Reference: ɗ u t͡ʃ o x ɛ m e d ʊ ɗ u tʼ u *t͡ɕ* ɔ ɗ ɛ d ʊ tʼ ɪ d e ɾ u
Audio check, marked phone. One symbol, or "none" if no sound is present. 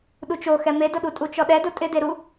t͡ʃ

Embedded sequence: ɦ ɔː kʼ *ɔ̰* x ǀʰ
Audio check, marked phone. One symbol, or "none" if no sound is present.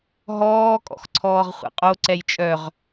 ɔ̰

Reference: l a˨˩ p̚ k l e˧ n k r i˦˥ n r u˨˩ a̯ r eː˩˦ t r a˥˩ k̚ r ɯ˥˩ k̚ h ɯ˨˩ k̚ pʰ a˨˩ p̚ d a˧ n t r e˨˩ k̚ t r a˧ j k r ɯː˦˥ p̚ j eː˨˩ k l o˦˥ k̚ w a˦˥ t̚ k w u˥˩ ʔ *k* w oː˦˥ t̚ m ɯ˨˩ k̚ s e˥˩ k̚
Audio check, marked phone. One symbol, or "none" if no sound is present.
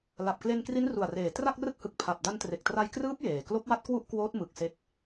k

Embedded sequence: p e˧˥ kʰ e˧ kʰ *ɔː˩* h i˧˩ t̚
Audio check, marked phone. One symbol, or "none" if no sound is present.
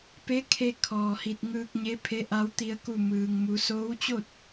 ɔː˩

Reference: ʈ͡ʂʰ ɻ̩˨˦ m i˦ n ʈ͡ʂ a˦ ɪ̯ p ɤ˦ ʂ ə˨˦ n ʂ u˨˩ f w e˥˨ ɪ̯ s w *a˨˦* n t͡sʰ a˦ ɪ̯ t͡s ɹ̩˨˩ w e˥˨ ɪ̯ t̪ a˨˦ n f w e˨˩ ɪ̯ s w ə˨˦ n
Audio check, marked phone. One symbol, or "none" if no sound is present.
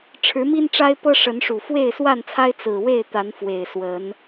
a˥˨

